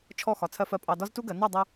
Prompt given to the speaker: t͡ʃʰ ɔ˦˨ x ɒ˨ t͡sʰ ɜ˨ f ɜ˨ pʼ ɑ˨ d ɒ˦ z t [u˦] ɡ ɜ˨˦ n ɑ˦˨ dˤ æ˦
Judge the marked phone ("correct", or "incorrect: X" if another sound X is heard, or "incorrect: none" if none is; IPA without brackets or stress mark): correct